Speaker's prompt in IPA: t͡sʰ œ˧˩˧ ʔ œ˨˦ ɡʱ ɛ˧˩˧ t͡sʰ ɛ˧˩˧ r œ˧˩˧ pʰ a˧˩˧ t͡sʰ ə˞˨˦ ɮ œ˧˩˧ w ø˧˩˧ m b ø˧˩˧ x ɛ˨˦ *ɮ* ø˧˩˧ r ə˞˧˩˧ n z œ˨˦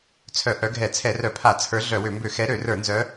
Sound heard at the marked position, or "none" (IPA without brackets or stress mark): ɾ